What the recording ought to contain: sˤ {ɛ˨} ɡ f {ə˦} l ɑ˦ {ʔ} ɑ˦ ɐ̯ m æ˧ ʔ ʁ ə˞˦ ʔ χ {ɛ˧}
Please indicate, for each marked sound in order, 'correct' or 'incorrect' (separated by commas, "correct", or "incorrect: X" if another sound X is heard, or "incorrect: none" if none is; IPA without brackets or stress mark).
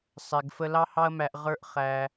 correct, correct, incorrect: h, incorrect: æ˧